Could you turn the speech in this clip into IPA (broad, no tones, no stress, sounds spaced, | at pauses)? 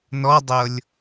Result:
n ɔ dˤ ɤ lʲ